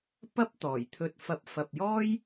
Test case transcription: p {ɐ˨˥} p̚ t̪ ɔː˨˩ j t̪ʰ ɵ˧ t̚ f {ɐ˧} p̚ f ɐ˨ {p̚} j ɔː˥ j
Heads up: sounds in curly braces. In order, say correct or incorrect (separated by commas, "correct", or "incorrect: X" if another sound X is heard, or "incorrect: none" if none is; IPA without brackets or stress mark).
incorrect: ɐ˥, correct, correct